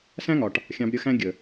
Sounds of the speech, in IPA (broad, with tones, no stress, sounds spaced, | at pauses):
s æ̃˦ ŋ ɒ˨ ʈ | xʲ ɑ̃˨ b ɾʲ ə˦˨ x æ̃˦ ɡʲ ə˨